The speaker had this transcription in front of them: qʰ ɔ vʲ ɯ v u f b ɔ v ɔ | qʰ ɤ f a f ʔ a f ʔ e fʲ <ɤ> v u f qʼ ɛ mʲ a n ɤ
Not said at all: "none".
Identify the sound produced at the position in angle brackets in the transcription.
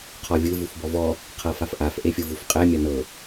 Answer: ɯ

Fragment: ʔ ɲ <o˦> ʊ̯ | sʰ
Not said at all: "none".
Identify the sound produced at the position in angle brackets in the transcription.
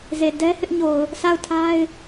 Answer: o˨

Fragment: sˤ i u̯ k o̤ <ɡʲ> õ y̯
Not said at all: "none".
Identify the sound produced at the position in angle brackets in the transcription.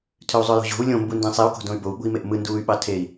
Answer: d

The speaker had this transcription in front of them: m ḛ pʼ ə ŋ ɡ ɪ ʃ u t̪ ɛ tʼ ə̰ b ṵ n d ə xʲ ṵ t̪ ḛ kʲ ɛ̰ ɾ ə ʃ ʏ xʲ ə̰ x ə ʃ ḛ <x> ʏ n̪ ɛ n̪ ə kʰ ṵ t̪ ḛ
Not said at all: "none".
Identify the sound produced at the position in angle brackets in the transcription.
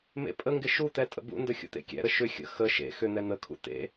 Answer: x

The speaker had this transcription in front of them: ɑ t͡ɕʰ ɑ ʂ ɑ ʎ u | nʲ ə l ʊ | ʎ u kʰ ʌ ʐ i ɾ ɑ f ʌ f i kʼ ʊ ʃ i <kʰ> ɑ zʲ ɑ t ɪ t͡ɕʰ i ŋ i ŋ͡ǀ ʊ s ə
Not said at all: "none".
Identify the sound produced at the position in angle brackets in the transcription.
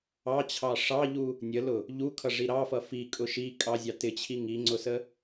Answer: kʼ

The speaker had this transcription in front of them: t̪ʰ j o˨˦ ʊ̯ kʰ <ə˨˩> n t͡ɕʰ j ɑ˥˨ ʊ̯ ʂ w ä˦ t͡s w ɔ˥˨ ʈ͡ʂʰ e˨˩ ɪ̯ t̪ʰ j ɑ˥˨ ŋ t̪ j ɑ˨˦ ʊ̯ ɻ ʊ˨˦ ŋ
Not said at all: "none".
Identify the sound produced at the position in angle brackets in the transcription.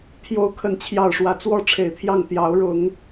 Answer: ə˨˩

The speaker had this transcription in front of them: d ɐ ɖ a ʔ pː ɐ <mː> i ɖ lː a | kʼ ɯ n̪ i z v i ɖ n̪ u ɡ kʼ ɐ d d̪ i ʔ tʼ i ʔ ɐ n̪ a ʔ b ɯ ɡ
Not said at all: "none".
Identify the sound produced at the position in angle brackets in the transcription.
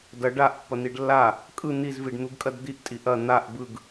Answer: n̪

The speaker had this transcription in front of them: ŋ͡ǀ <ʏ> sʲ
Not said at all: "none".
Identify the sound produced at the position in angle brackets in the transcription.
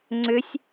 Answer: ʏ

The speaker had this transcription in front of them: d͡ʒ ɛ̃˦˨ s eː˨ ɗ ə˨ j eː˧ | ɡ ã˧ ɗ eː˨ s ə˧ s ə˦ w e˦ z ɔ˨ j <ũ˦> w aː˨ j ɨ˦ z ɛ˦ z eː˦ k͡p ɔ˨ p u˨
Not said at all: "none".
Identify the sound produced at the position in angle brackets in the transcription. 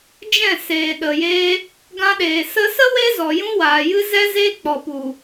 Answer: ũ˦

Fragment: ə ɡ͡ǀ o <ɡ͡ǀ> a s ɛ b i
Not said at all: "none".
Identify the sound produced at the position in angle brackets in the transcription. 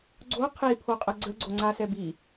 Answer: ŋ͡ǀ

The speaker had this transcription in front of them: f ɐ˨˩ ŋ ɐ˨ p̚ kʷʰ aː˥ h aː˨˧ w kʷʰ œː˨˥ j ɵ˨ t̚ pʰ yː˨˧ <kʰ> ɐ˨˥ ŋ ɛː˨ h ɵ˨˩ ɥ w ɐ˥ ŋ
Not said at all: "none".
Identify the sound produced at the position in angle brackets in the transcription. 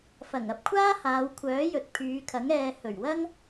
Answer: kʰ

